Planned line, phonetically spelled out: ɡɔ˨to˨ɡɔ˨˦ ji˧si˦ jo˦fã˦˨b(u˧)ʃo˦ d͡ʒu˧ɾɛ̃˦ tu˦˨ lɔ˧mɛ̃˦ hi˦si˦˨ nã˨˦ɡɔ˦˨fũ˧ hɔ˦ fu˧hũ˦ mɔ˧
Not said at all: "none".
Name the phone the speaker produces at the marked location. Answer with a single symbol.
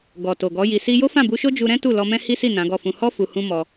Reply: u˧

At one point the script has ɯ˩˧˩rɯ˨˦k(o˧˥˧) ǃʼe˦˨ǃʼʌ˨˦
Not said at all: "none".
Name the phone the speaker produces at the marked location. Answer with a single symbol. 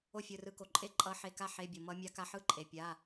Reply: o˩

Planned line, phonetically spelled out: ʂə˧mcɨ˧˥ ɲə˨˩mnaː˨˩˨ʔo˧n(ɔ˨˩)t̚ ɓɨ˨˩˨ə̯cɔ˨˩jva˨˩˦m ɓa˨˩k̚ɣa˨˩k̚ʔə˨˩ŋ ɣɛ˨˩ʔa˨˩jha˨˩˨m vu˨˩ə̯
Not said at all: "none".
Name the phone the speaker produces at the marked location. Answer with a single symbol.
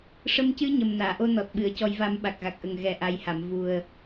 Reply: ɔ˨˩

